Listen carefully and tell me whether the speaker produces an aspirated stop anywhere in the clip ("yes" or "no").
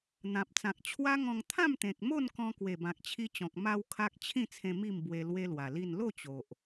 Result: yes